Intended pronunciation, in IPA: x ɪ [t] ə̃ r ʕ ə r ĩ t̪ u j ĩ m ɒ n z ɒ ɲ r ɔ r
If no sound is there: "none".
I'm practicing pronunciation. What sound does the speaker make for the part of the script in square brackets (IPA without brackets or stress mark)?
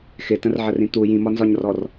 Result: t